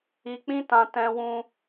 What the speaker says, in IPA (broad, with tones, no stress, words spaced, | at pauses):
i˧k͡pĩ˦tã˧ tɛ̃˧wũ˧